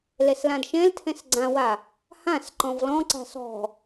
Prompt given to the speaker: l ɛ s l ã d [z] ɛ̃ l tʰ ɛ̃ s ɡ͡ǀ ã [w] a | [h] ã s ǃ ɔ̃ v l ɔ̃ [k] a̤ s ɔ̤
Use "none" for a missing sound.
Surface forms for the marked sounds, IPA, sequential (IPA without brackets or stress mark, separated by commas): ʃ, w, h, ǀ